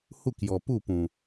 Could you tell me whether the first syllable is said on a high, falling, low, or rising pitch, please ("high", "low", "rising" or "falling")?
falling